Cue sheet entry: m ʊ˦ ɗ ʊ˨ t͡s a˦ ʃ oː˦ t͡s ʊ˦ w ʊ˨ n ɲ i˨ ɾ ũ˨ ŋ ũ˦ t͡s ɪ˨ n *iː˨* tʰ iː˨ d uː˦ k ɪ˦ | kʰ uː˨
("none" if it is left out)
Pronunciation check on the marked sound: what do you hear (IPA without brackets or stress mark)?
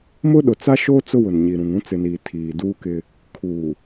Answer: iː˨